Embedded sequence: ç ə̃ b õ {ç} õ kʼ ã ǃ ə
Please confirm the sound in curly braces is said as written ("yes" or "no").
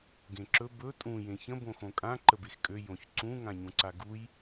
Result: no